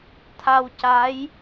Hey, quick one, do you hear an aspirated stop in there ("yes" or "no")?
yes